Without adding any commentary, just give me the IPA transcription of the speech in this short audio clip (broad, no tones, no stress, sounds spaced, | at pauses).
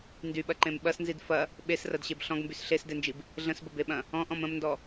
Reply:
n d y ɓ ɐ ǃ ẽ m ɓ ɐ s n z i d f ɐ | ɓ e s r ɐ d ɕ e b ɬ ɔ̃ ɡ m b y s ɬ e s d e n d͡ʒ i b | ɮ ə̃ s b ə b e ɓ ɐ̃ | ɔ̃ ʔ ɔ̃ m ə̃ m n d ɔ